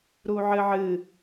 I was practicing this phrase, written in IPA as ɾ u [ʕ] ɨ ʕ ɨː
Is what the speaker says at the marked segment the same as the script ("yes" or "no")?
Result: yes